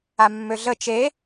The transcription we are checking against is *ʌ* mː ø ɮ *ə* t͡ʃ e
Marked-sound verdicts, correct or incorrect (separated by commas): incorrect, correct